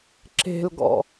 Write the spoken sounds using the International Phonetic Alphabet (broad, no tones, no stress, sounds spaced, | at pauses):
ǁ e̤ l ɡ ɔ̰